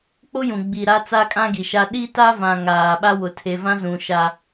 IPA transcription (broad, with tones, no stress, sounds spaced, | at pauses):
k͡p o˦ j ũ˨ ɡ͡b i˨ ɾ a˦ t͡s a˦ kʼ ã˦ ɡ i˨ ʃ a˦ ɗ i˦ t a˦ v ã˨ ŋ aː˨ ɓ a˦ w ʊ˨ tʰ e˨ v ã˦ z ũ˨ ʃ a˦